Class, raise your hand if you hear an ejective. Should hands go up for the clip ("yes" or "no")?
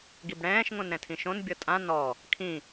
yes